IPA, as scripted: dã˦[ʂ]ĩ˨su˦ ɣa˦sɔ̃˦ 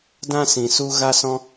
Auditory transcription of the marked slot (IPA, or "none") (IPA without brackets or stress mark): s